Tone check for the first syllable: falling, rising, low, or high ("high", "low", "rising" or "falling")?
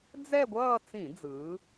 falling